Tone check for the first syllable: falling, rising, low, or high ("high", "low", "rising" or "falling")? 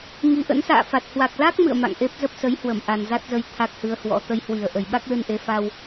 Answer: rising